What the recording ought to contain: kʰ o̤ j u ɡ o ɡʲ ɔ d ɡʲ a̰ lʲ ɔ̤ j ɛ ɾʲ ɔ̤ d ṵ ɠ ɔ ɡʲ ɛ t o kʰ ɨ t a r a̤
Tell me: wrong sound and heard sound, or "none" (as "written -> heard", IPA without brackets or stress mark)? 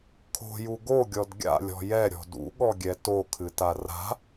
none